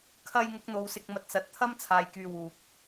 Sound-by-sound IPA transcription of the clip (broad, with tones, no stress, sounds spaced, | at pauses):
kʰ ɐ˧ j ŋ ʊ˨˥ k̚ n̪ o˨˧ w s ɪ˧ k̚ m ɐ˨˥ t̚ s ɐ˨ t̚ t̪ʰ ɐ˥ m t͡sʰ aː˨ j k yː˧ w uː˨ p̚